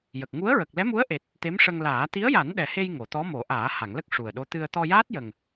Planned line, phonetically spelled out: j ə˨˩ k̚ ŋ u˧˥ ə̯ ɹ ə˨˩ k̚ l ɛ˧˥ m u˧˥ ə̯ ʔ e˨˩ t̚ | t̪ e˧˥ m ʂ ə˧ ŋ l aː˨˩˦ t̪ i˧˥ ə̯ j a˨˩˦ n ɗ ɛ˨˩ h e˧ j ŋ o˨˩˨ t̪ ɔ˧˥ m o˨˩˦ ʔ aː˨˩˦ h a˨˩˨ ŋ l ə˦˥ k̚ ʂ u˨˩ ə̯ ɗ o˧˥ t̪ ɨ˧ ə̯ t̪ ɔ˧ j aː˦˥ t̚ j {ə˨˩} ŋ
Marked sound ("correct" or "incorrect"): correct